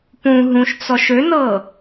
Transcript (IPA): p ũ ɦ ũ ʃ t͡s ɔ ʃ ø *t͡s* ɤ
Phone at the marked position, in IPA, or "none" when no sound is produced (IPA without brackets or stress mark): n